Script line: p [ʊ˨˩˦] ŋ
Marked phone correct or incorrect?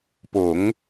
correct